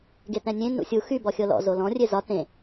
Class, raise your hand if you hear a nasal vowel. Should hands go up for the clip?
yes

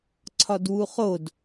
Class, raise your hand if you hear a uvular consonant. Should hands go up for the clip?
yes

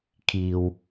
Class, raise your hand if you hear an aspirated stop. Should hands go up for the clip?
yes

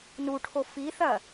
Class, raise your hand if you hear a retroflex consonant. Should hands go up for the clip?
yes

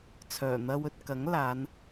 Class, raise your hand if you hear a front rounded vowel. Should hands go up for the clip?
yes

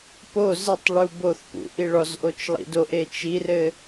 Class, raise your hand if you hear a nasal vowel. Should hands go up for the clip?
no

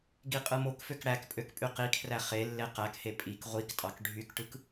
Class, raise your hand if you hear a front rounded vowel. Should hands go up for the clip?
yes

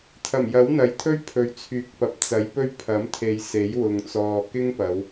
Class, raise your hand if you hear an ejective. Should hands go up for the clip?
no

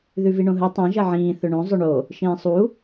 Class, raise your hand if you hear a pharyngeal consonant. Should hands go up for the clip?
yes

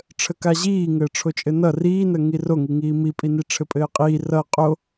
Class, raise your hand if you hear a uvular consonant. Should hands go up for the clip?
yes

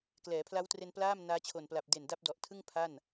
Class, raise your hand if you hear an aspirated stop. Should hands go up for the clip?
yes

